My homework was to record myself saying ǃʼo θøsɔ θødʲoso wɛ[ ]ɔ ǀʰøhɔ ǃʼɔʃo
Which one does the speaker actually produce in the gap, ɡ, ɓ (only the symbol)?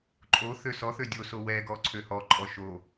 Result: ɡ